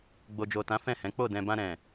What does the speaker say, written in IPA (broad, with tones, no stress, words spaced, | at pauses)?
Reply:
ɡ͡bo˨d͡ʒo˨tã˨˦ fɛ̃˦˨hɛ̃˨˦ k͡po˦˨ dɛ̃˨bã˧ ɾɛ̃˨